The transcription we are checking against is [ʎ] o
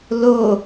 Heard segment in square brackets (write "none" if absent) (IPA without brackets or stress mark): l